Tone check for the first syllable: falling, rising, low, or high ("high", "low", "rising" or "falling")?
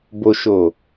low